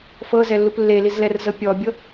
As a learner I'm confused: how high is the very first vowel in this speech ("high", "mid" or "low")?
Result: mid